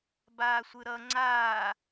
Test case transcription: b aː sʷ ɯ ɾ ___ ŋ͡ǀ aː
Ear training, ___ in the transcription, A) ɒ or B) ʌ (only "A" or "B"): B